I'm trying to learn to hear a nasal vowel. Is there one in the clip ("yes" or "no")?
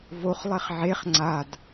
no